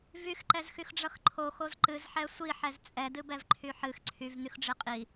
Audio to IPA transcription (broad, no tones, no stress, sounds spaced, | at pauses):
v y x ǃ ɛ z x y x ɖ͡ʐ ʌ x ǃʰ o x o z ǃ ɨ z ħ ɛ sʷ i ħ ɛ z t͡sʼ ɛ d ɨ b ɛ v ǃʰ y ħ ɨ x ǀʰ y v n̪ y x ɖ͡ʐ ɨ qʼ i